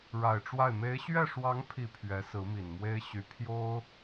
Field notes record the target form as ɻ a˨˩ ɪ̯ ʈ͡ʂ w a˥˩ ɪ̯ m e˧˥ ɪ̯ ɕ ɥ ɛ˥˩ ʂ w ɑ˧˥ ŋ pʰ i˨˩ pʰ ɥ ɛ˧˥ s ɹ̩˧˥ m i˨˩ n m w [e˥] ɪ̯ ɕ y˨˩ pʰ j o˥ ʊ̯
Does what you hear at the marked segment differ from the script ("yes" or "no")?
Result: no